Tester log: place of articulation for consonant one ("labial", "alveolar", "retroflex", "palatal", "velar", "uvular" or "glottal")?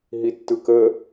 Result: glottal